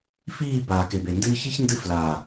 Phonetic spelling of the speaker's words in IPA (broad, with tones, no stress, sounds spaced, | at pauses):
f iː˦˨ b aː˨ k e˨ b e˨ n d ɨː˦ ç i˦ ç n d ɨ˦˨ f l aː˨